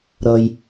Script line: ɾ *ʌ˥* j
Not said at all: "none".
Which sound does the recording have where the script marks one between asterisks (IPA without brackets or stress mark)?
ʌ˩